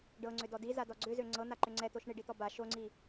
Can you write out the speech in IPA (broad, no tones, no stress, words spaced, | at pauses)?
ɖɤŋ͡ǀʏdɔ dizadɔ ɡ͡ǀʏzø ŋ͡ǀɤn̪aǃʏ ŋ͡ǀɛt̪oʃ ɳiɖit̪ɔ ba ʃoŋ͡ǀi